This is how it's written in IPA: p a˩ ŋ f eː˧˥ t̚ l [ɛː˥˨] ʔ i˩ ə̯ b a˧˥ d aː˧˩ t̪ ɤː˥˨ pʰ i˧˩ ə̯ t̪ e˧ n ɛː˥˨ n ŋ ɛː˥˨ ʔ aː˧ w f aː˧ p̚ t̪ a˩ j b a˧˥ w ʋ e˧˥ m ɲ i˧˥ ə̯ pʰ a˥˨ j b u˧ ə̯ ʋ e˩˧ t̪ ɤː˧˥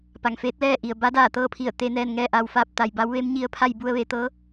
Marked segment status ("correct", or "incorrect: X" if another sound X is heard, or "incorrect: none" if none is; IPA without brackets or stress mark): correct